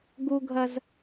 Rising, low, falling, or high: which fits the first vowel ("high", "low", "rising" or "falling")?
high